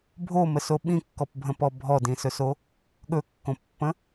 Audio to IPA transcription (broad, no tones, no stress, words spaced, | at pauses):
bʱoməso ɓĩkːɔpbʱə̃pɔ bʱɔdĩsɵso | ɠɵkːõpːə̃